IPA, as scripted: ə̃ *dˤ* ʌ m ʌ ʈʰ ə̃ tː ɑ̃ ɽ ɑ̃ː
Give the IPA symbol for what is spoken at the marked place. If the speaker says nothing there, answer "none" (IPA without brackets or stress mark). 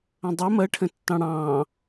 dˤ